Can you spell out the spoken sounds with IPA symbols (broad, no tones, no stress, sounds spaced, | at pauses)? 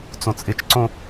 t͡s õ t͡sʼ ɪ t͡ʃ ǀ õ